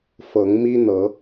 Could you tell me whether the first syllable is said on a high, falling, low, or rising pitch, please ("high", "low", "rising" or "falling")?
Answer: rising